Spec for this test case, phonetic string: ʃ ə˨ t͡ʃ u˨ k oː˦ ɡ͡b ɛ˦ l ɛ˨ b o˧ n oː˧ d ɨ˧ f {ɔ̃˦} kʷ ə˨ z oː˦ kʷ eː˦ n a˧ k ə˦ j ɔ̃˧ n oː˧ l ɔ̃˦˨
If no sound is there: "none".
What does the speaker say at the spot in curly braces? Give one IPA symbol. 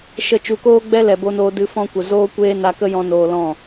ɔ̃˦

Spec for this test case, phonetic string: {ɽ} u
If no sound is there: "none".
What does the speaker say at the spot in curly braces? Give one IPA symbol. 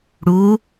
ɽ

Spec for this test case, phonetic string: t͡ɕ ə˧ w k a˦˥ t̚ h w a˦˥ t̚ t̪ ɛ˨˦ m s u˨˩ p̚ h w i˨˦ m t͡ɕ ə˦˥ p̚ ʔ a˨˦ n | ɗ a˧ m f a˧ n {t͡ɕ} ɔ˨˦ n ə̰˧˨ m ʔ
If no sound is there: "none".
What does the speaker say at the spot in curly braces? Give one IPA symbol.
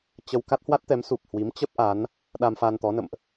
t̪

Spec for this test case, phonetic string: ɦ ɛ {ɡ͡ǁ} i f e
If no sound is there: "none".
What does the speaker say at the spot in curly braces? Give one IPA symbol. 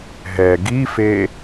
ɡ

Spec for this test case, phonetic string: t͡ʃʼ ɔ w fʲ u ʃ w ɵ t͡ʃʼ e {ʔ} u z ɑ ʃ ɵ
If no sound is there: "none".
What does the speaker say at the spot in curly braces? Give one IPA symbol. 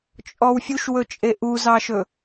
ʔ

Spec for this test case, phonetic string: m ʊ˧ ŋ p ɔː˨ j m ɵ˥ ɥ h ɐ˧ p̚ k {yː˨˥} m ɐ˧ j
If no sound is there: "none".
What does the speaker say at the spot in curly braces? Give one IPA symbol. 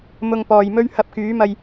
yː˨˥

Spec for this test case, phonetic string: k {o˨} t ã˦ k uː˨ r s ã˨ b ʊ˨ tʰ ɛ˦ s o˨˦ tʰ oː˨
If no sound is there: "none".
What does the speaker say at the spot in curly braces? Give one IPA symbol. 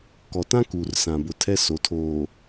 ɔ˨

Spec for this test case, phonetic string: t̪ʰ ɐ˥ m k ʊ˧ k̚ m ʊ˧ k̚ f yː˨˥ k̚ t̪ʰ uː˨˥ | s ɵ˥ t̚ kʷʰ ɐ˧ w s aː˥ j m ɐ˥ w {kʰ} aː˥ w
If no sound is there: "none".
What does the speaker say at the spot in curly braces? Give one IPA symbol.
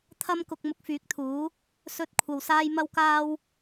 k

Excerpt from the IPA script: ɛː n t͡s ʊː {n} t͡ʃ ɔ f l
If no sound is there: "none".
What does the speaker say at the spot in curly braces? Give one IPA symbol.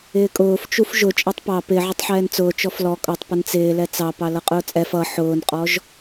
none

